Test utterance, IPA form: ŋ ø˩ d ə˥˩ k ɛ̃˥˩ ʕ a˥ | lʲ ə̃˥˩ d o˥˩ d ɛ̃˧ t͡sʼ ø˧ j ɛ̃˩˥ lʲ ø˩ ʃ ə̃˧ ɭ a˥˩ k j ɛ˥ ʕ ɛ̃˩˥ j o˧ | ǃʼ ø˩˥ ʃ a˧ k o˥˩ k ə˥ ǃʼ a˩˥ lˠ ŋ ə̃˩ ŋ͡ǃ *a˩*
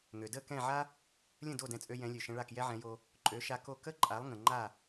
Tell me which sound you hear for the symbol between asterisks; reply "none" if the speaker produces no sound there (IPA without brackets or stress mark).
a˥˩